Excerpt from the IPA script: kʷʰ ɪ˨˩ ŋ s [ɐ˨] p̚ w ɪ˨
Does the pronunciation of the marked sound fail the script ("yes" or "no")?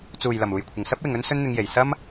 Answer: yes